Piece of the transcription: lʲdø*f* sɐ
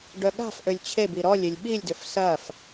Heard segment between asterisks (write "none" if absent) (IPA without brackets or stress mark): f